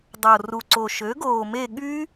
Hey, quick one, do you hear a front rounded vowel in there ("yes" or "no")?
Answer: yes